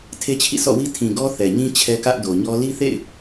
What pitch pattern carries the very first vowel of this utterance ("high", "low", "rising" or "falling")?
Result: high